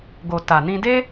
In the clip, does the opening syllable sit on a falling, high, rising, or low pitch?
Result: low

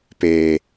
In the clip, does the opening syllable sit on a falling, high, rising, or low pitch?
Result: low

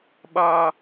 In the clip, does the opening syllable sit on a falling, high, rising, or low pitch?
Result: high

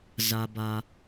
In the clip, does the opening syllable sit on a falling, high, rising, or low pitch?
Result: low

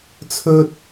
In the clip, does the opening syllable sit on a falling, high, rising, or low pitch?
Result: high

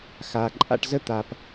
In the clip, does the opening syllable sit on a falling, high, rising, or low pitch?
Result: low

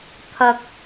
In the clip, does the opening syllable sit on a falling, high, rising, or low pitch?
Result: low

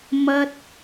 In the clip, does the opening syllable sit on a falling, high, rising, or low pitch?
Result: high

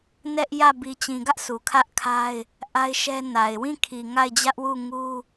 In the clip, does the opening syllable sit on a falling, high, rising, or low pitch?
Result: high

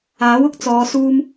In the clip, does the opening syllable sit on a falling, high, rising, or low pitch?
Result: rising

